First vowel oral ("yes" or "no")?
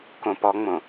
no